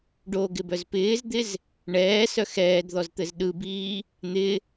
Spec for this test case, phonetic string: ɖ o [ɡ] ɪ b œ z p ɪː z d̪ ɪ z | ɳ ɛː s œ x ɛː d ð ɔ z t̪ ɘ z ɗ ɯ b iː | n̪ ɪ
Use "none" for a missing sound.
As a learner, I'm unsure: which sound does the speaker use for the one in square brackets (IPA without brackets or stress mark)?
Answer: ɡ